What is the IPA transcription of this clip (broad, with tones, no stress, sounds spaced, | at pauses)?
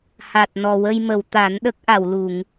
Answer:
h a˨˩ t̚ n ɔ˨˩ w ə˧ j m ə˨˩˨ w t̪ a˨˩˦ n ɗ ə˦˥ k̚ ʔ a˨˩˨ w l u˨˩˨ ŋ